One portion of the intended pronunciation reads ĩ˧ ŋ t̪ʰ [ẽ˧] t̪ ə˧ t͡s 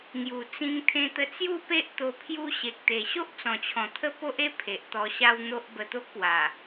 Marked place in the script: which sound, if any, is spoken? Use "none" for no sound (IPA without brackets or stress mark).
ẽ˧